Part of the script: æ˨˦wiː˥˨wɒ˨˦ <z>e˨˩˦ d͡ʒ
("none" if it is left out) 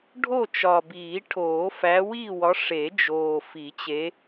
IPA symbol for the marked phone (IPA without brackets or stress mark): ʂ